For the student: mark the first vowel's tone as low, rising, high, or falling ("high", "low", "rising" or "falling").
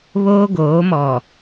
high